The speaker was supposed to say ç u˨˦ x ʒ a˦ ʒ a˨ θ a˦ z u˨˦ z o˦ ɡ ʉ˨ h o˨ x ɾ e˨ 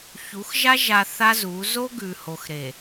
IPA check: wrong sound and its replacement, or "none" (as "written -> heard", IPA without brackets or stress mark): none